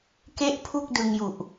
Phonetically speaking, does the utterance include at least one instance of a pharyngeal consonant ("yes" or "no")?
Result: no